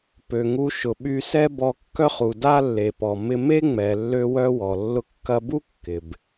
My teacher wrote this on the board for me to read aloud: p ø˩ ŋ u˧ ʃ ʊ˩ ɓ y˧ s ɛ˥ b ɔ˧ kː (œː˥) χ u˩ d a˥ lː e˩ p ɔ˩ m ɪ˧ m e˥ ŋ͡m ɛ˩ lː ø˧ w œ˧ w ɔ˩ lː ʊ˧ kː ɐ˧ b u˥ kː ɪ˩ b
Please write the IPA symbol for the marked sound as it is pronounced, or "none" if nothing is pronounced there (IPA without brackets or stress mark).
œ˥